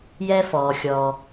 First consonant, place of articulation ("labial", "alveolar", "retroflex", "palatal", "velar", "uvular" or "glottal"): palatal